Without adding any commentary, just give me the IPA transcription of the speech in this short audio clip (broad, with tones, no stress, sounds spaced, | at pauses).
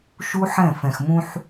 ʃ u˦ ħ ɛ̃˦˨ f ɛ̃˨ x m ũ˦ ħ